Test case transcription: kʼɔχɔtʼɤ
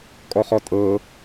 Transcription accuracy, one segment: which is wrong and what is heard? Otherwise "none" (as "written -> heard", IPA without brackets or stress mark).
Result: none